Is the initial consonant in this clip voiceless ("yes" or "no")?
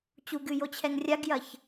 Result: yes